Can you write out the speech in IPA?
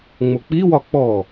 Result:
ŋ͡mok͡piwɒ k͡pɔ

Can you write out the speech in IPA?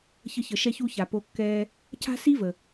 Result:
çə˥çə˧ ʃɛ˧çu˧ça˩ po˧ kːɛː˧ | ca̤˥si˥və˩

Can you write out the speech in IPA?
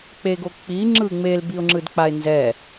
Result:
k͡peɡok͡pi ŋ͡ǁɯŋ͡mel biʊ̯ŋ͡ǁɯdk͡paɪ̯nzɛ

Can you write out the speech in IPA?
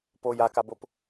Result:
poj akabop

